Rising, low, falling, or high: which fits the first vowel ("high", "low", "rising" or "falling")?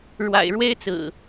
low